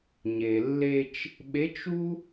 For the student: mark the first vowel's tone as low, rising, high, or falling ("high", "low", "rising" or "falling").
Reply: low